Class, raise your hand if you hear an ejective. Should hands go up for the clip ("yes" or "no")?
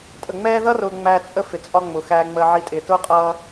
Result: yes